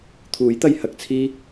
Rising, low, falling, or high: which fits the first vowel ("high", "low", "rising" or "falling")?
rising